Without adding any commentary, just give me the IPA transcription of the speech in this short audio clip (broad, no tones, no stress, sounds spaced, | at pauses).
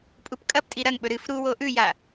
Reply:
pʼ u p kʼ ɐ p tʼ i ɾ ɐ ŋ ɓ ɵ ɾ ɨ f ɾ u w o ʔ ʉ j a